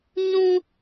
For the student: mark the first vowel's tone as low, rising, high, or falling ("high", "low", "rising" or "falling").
high